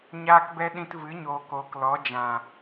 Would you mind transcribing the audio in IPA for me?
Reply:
ɲ aː˦ k b ɛ˦ ɗ ĩ˧ t v ɨ˨˦ ɲ oː˨ k oː˨ k l ɔ˨˦ d͡ʒ ã˨

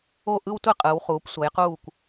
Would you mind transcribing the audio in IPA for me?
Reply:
o˥˧ ʔ ɯ˥ w tʷ e˥ qʼ ɯ˩˧ w χ uː˩˧ p sʷ ʌ˩˧ j q uː˧˩ kʷ

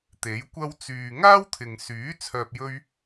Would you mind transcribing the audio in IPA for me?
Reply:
t̪ e˨˥ j kʷ ɐ˥ w t͡s yː˨ ŋ aː˥ w t̪ʰ ɪ˨ ŋ s yː˨˥ t͡sʰ œː˧ p̚ j ɵ˥ ɥ

